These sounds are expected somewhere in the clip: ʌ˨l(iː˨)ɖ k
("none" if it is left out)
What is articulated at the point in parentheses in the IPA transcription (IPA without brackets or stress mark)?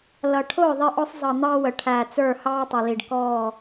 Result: i˨